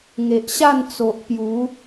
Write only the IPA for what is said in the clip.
ŋe˨ʔɕa˥˧n t͡so˨ʔpju˨˦

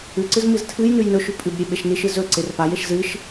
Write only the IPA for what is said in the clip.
ʉǀɨz mɨztʰɨjnʉj nɵʃʉ pʼʉbɾʲe ɓeʃniʃɨ zɵǀer pajeʃ zɨʃ

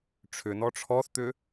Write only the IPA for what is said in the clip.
ʈ͡ʂʰʏnɔ ʈ͡ʂʰɔθt̪ʏ

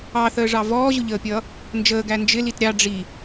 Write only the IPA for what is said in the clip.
ɑθəːʐɑ vɔːʑʊʎəːpʲʌː | nd͡ʒəːɡæ nd͡ʒɪ litɾʲɑ ɖ͡ʐi

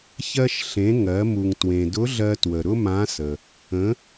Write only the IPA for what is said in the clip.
çɜ˧ʃɬẽ˩˧ ŋɜ˩˧ mu˩ŋ twẽ˩dʊ˧˥ɮɜ˧twə˩ ɾʊ˥mã˧˥sə˩ | ə̃˩˧

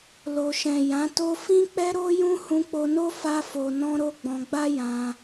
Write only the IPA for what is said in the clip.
lo˨ʃɛ̃˨jã˨˦to˦ fĩ˦k͡pɛ˦ɾo˦jũ˦ hũ˧k͡po˧no˦ fa˧fo˨nɔ̃˧ ɾo˦ɡ͡bɔ̃˧ ɡ͡ba˦jã˧

